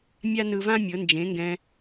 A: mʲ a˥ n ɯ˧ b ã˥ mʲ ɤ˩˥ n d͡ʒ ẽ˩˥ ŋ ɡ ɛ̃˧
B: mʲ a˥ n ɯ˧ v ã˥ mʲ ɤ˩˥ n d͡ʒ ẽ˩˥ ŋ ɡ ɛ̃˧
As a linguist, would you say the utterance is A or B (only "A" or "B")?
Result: B